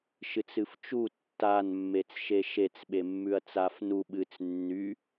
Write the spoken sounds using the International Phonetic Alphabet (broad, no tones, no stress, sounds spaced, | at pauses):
ʃ ɨ t͡s ɨ f t͡ʃ u tː a n mː e t͡s ʃ e ʃ e t͡s ɓ e mː ʉ ɐ̯ t͡s a f n u ɓ ɨ t͡s nː y